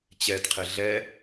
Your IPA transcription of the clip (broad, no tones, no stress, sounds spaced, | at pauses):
t͡ɕ ɛ d qʰ ɪ ɮ ɛ